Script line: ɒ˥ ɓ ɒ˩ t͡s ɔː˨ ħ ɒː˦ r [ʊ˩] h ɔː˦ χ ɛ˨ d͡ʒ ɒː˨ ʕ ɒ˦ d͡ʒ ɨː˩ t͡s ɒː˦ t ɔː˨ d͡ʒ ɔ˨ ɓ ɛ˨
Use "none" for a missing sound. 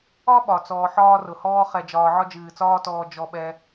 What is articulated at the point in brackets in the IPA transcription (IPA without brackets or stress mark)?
ʊ˩